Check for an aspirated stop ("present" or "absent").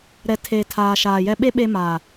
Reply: present